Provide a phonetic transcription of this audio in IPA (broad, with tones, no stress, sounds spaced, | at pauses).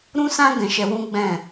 ɾ ũ˦ s ã˦ ɡ ɛ̃˧ ʃ ɛ˧ w ũ˦ ɡ͡b ɛ̃˦˨